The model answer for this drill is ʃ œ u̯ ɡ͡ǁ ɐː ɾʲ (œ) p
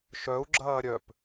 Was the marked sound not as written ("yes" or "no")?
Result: no